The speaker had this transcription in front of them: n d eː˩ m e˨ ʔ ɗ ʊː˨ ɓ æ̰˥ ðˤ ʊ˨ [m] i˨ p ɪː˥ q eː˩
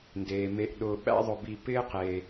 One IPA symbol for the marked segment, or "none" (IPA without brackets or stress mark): b